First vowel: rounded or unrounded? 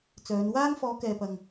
rounded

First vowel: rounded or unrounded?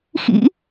unrounded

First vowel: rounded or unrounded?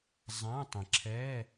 unrounded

